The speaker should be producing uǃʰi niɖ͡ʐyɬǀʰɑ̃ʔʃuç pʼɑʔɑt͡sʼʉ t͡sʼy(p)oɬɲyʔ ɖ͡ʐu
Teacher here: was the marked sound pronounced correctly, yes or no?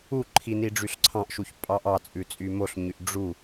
no